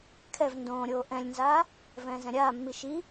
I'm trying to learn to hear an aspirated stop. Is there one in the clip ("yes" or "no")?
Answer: yes